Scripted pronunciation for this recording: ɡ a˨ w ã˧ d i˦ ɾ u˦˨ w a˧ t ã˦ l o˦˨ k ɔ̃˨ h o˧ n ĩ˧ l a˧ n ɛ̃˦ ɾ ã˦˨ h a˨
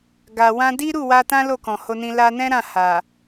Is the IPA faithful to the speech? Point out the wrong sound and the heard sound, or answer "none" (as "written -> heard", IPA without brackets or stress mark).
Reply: none